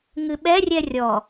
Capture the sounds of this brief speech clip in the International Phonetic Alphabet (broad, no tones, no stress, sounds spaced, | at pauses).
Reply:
ŋ ɨ ɓ ɛ rʲ ɛ rʲ ɔ